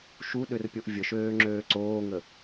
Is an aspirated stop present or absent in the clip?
absent